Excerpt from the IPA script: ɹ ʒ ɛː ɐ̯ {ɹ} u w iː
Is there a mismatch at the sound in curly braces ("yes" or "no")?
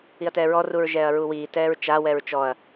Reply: no